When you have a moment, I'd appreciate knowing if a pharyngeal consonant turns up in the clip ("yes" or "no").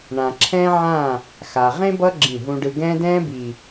yes